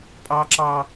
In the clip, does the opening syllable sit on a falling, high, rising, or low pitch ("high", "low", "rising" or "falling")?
high